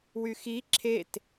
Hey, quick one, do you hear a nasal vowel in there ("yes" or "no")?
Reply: no